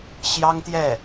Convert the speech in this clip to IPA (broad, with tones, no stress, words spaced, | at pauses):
ɕjɑ˥ŋt̪jɛ˥˩